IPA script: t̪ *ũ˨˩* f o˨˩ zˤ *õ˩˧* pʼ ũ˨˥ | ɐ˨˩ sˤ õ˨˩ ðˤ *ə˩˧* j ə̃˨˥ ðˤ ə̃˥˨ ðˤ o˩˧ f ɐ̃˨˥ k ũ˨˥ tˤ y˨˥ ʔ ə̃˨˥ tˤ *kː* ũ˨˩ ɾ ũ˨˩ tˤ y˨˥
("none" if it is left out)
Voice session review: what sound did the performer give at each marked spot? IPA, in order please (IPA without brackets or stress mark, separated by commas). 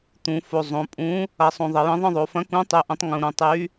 ũ˩˧, õ˩˧, ə˩˧, ŋ